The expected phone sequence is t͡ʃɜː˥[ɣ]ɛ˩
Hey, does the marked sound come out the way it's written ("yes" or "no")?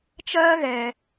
yes